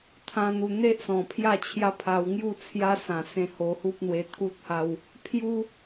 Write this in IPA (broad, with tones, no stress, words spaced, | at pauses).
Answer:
t̪ʰã˦n̪u˧ n̪e˦ʔsɔ̃˨˩ pʰja˥˧t͡ɕʰja˦pʰa˧w ŋju˥˧t͡sʰja˦sã˨˩ sẽ˧ho˧hu˦p̚n̪we˧ t̪ʰu˦t̚ha˧w | pʰju˦